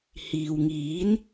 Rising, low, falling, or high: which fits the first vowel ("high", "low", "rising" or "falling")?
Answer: low